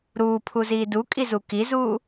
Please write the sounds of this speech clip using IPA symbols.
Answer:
ɾ uː pʰ u z iː d u kʼ i z u k i z uː

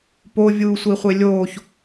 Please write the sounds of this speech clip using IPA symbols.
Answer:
p o vʲ uː sʷ i χʷ e lʲ oː ç

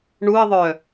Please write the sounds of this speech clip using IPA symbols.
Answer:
ɳ u ə̯ ðˤ œ

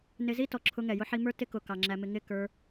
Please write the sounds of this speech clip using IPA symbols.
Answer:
n ɪ˧ z i˦ t ɔ˨ ǁʰ ʊ˧ ŋ ɛ˨ j ʊ˧ ħ i˧ m ə˞˦ t ɪ˦ k ʊ˨ k ɑ˨ ŋ͡ǁ æ˧ m ɪ˧ ŋ ɪ˦˨ k ə˞˧

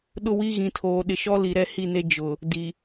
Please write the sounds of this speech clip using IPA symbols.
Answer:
ɗ ʊ˦ w i˦ ɣ ĩ˨ tʰ oː˨ ɗ ɪ˨ ʃ ɔ˦ l i˨ ɾ ɛ˦ h i˦˨ n e˦ d͡ʒ ʊ˨ | d i˨

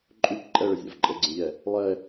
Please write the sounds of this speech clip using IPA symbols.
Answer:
ǃʼ ʉ p ǃʼ ɛ ɭ ə zʲ a̰ v ǃʼ ə ɡ͡ǀ ə̃ ʎ ɛ | lˠ ɛ

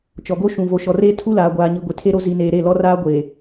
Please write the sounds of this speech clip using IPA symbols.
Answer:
t͡ʃ ɔ˨ ɡ o˦ ʃ ũ˨ v o˨ ʃ ɔ˨ r eː˦ tʰ u˦ l aː˨ ɡʷ aː˨ ɲ i˨ ɡʷ i˨ tʰ e˦ ɾ o˦ z i˨ n eː˨ ɾ e˦˨ l ɔ˦ r aː˦ ɡʷ e˨

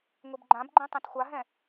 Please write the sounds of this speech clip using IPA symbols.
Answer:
ŋʷ i b ɡ͡ǃ ã b ɡ͡ǃ ĩ tˤ ɛ̃ t xʷ a ɦ ɛ̃

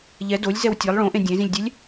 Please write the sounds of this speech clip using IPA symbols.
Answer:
ʎ ɛ d o lʲ z ɛ w tʲ e lˠ ɭ õ ʔ ẽ dʲ ẽ z ĩ lʲ dʲ ɛ lʲ

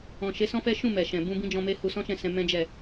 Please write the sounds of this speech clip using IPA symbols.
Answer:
ɔ̃˨ ʃ e˨˦ s ɔ̃˦ f ɛ˦ ʃ ũ˦˨ m ɛ˨ ʃ ɛ̃˨ b ũ˧ b ĩ˦ d͡ʒ ɔ̃˧ m e˦ h u˧ s ɔ̃˦ ʃ ɛ̃˦˨ s ɛ̃˧ m ɛ̃˦ d͡ʒ ɛ˦˨

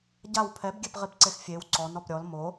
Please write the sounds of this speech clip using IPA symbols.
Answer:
ɟ a w pʰ ɛ b ɡʲ ɛ p ʁ i p ǀ e x fʲ e w ǀ ɔ n ɔ p ɾʲ ɔ l m o

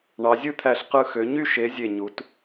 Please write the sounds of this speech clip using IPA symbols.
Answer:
ɳ ɑ˩˧ zʲ ɯ˥˩ t̪ʰ æ˧˩ ɬ q ɯ˧˩ x ø˩˧ ɲ y˥˩ ʃ e˨˥ zʲ e˧˩ ɲ u˩˧ t

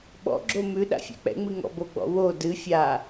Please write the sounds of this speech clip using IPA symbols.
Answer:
ɓ ɔ̰ ɡ͡ǁ o m ʉ ɗ a̰ fʲ ɛ̰ k͡p ɛ̰ ŋ͡m ɨ ŋ ɔ̰ b o ɡ͡b ɔ̰ w o d ɨ fʲ a

